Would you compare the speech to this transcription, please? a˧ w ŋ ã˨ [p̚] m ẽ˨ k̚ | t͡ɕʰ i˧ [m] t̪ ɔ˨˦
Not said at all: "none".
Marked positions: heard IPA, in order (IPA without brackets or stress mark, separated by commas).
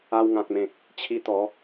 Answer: k̚, none